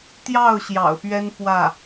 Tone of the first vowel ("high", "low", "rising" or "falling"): falling